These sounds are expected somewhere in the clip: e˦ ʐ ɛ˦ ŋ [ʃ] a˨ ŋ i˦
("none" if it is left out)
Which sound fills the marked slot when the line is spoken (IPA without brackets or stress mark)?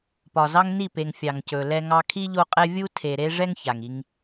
ç